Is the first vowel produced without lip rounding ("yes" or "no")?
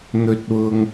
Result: no